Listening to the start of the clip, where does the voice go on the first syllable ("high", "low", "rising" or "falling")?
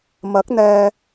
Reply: rising